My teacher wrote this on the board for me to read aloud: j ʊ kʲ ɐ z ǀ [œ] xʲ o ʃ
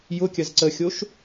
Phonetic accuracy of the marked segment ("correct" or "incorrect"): incorrect